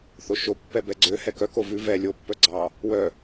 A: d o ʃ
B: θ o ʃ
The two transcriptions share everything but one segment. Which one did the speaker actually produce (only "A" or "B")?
B